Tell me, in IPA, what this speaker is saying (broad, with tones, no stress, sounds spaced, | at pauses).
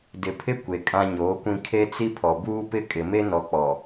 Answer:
d ɪ˨ pʰ ɪ˦ kʷ e˨ kʼ ã˦ ɲ oː˨˦ kʷ ĩ˦ kʰ e˦ t͡s i˦ pʰ ɔ˨ b uː˦ p ɪ˦ kʼ ɪ˨ m e˦ n ɔ˨ k͡p ɔ˨